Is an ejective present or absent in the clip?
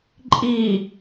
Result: present